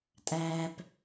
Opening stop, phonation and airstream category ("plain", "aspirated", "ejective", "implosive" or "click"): ejective